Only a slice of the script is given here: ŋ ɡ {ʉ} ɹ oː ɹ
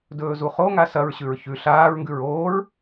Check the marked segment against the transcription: correct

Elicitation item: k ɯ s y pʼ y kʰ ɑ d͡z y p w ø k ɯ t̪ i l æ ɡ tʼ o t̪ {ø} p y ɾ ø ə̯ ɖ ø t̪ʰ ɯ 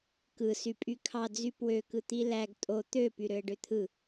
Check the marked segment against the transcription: correct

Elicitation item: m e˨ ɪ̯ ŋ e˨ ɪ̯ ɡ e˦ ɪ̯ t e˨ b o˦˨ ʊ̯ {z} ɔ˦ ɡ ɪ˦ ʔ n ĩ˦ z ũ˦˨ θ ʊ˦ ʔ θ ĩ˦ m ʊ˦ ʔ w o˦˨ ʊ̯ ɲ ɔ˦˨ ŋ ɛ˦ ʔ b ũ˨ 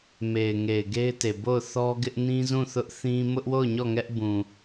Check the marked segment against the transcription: incorrect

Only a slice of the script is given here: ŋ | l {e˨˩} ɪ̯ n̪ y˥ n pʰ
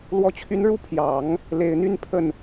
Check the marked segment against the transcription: correct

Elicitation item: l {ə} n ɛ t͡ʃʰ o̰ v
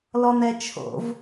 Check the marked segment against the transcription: incorrect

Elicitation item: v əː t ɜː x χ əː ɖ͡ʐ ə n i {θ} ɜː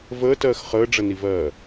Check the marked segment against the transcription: incorrect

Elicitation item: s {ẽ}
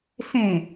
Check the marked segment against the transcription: correct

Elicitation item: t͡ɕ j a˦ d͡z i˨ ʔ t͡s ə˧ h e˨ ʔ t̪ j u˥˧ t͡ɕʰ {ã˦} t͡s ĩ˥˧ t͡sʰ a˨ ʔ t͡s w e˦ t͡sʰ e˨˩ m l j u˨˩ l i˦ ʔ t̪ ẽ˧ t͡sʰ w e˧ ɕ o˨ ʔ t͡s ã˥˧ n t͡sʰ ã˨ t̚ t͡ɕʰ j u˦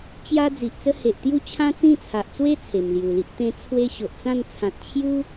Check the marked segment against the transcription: correct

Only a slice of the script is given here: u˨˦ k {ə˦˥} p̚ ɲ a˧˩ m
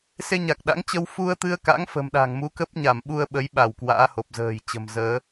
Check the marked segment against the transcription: correct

